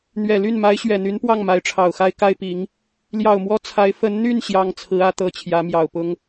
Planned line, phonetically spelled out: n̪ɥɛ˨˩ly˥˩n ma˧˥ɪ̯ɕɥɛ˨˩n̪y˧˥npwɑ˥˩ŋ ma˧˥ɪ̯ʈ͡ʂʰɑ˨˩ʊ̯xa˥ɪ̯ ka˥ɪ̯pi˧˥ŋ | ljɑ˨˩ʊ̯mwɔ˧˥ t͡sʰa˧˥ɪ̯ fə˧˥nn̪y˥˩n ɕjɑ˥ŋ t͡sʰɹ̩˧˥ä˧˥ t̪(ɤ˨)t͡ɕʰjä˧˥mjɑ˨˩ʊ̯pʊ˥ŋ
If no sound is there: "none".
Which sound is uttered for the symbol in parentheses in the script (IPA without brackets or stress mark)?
ɤ˧˥